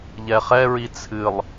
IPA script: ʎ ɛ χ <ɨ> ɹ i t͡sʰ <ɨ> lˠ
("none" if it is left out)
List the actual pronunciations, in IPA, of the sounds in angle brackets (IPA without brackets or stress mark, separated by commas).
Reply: ɛ, ɨ